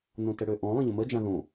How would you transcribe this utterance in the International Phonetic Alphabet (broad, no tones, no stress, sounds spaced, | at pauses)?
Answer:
n õ t ə ɽ ø ʔ ɔ̃ lˠ ə̃ ʎ ə̃ m ə d͡ʒ ã ð õ